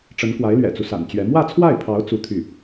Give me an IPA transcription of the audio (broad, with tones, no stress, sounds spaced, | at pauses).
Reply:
ʈ͡ʂ ə˧˥ n k w a˧˥ ɪ̯ l ɥ ɛ̰˨˩ t͡s u˦ s a̰˨˩ n t͡ɕ ɥ ɛ˧˥ m w ä˥˧ t͡sʰ w a˥˩ ɪ̯ pʰ ɑ˧˥ ʊ̯ t͡s u˥˧ t̪ʰ y˥˩